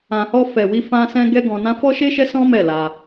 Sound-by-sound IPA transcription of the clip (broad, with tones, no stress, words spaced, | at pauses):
ã˨hɔ˧ fɛ˨wi˧ fã˧sɛ̃˧ ɡɛ˦ɡɔ̃˧nã˦ fɔ˦ʃe˦ʃɛ˦ sɔ̃˦ mɛ˦˨la˧